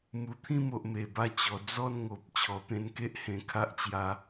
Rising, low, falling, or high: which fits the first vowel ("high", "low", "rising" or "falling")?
low